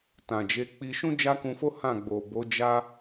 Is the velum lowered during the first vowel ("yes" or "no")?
yes